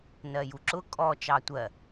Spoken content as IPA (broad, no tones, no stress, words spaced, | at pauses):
nɜjuǁʊ kʼɔ t͡ʃɑtʷɜ